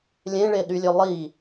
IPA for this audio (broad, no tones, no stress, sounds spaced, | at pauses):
lʲ ẽ ɭ e ɗ y lʲ ø lˠ i